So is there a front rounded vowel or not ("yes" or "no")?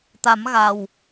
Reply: no